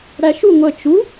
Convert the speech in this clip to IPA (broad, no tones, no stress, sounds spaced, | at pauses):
ɽ æ ʃ u ŋʷ ə t͡ʃ u